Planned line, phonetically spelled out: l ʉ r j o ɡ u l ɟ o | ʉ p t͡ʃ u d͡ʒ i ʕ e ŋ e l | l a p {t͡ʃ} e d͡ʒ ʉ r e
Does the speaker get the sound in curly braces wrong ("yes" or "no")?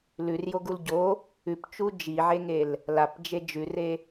yes